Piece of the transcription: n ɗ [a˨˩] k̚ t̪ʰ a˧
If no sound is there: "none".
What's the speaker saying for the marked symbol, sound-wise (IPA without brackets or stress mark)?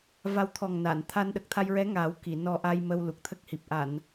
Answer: ə˨˩